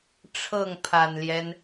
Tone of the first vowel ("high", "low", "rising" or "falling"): falling